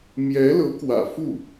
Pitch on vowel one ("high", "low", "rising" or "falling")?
rising